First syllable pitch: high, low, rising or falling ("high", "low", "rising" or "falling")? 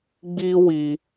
high